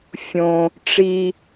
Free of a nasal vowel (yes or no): no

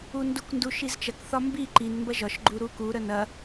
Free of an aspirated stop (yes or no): yes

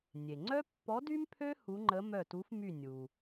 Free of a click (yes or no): no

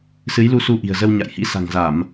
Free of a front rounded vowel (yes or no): yes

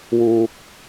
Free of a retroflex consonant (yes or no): yes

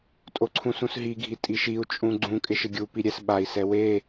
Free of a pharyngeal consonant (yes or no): yes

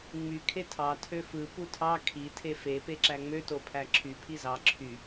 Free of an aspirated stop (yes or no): no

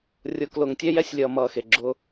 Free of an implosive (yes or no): yes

